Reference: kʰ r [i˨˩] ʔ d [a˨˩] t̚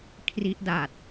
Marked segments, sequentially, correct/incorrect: incorrect: i˦˥, correct

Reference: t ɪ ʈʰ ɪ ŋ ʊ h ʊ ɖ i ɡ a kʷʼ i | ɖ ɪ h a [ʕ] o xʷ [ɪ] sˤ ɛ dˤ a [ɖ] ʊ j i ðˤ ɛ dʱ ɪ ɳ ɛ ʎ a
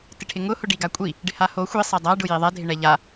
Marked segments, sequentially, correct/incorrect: incorrect: h, incorrect: i, correct

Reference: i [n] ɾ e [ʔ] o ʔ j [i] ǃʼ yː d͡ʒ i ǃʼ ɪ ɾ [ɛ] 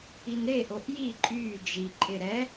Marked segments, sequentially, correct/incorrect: correct, correct, correct, correct

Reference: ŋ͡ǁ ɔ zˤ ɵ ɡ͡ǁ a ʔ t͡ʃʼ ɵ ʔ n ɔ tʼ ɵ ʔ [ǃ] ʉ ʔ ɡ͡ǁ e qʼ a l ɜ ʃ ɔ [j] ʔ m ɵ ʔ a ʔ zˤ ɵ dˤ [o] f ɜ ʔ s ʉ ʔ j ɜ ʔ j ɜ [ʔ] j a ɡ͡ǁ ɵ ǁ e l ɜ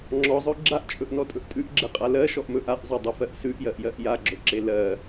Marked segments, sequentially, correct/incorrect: incorrect: tʼ, incorrect: none, incorrect: ɵ, correct

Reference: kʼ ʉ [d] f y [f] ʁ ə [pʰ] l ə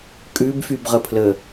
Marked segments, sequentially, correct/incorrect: incorrect: b, incorrect: b, correct

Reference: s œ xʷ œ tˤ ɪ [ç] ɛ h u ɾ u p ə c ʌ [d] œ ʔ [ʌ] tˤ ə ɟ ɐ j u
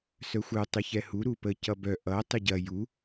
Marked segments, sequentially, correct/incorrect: correct, incorrect: b, correct

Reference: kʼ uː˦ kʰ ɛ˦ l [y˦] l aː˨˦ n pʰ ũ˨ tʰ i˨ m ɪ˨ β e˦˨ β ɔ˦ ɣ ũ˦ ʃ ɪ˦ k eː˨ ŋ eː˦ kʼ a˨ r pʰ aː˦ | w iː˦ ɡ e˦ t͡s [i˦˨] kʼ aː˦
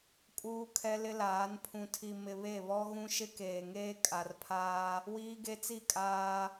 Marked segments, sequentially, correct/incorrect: incorrect: ɪ˦, correct

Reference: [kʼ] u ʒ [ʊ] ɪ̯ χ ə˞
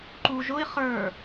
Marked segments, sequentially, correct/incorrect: incorrect: ǃ, correct

